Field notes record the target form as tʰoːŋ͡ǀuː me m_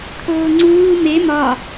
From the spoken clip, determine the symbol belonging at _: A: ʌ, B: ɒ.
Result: B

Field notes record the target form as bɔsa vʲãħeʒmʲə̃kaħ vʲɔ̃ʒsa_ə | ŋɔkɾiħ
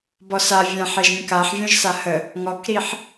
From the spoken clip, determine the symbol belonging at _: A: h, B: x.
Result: A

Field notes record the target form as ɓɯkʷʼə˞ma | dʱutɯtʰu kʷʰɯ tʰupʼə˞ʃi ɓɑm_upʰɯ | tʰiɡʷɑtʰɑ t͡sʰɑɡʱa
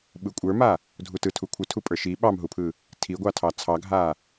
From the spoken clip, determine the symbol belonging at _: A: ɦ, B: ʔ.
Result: A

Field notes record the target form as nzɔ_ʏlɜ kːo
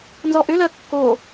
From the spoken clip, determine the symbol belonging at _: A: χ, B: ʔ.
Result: B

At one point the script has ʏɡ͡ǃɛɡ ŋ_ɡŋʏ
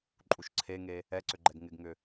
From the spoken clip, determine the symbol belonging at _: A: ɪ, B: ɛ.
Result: A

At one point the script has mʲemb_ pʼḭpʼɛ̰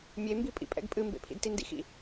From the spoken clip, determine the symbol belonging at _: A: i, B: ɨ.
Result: A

